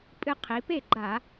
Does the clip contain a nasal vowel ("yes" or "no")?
no